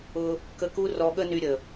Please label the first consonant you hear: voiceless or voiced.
voiceless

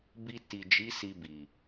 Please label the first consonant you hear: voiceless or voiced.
voiced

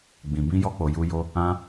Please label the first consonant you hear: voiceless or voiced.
voiced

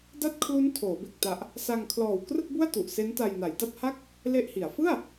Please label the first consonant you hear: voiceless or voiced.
voiced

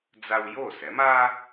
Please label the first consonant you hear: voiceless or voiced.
voiced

